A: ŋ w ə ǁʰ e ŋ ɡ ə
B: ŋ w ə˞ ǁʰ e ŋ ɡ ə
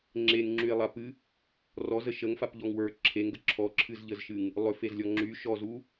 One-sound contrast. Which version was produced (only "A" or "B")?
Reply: B